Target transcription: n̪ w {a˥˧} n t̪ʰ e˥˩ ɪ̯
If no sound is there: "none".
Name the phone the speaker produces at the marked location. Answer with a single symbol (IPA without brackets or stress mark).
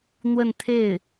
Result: ə˥˧